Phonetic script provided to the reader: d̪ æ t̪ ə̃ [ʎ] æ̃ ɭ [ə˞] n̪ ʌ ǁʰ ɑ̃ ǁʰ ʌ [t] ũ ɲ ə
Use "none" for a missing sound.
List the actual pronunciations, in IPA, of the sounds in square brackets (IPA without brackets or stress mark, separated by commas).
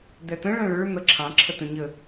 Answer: ɭ, ə˞, t